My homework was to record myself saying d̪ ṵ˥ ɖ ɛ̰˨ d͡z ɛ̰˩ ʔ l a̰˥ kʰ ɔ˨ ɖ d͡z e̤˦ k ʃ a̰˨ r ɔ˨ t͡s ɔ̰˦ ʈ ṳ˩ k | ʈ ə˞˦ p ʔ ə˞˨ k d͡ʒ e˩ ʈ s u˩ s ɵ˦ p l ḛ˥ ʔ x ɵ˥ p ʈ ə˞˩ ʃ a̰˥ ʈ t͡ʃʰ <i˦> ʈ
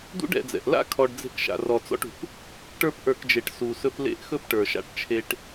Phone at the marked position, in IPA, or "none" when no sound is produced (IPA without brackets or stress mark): e˦